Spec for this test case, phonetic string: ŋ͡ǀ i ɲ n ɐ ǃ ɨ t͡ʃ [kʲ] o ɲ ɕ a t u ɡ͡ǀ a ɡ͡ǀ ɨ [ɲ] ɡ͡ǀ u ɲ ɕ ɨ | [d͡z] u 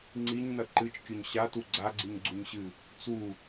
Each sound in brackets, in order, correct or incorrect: correct, correct, incorrect

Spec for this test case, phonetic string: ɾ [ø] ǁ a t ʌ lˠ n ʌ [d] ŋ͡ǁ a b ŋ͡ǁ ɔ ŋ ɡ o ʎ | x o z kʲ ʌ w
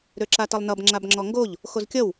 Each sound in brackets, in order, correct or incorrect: correct, incorrect

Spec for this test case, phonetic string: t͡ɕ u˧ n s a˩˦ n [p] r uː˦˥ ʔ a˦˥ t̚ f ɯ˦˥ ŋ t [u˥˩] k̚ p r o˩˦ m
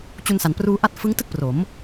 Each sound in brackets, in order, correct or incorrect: correct, incorrect

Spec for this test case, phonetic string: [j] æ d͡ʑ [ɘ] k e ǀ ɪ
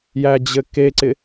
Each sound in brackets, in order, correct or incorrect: correct, correct

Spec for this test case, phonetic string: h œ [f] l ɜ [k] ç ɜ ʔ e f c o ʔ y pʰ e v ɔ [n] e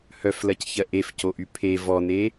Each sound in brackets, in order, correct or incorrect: correct, incorrect, correct

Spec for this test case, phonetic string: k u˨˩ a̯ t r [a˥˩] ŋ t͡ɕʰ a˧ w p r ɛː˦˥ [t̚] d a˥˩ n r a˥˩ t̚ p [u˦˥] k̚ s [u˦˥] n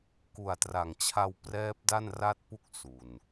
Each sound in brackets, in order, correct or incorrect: incorrect, incorrect, incorrect, incorrect

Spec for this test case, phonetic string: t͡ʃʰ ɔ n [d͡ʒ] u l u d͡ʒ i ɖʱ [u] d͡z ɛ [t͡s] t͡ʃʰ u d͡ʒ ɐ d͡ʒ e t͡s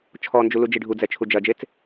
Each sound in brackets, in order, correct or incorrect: correct, correct, incorrect

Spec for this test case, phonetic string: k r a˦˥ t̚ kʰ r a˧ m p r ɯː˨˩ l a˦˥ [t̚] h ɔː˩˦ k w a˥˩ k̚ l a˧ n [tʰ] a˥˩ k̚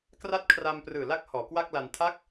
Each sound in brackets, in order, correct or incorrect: incorrect, correct

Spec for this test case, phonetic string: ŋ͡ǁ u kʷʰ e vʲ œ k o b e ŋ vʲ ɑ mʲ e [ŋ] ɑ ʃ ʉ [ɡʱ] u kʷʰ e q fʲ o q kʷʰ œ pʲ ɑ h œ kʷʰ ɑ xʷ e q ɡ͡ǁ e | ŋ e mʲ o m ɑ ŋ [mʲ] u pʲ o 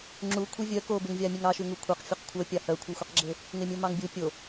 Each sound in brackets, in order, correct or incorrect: correct, incorrect, incorrect

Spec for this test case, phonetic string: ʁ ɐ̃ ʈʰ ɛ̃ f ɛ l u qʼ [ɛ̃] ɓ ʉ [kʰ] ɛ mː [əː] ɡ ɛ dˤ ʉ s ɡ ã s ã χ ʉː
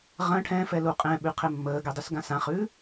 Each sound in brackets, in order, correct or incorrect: correct, incorrect, correct

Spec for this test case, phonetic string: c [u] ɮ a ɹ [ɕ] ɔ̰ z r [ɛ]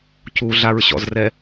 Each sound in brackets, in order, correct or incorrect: correct, correct, correct

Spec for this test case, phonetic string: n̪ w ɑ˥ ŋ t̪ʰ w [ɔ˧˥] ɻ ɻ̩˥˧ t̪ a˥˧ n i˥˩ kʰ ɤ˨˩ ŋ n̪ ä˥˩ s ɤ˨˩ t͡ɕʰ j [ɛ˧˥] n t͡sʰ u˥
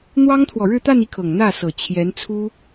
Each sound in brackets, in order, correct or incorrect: incorrect, correct

